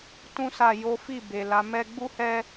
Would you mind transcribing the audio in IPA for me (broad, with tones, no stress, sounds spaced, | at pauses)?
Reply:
t ũ˦ s a˦˨ j o˨˦ f i˦˨ b e˨ l a˨˦ m ɛ˦ ɡ͡b u˦ h ɛ˦